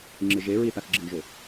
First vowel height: high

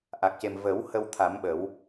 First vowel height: low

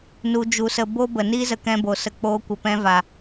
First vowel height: high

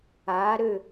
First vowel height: low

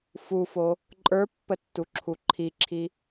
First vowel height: high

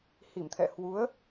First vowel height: high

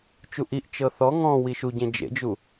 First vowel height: high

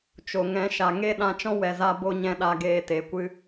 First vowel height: mid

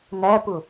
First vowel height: low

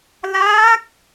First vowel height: low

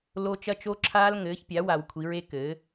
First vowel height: mid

